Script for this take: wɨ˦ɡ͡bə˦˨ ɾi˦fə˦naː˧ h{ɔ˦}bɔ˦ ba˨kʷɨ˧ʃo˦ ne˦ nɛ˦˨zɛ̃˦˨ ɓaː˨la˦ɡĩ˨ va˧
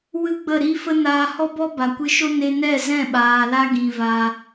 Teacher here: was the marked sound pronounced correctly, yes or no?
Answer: yes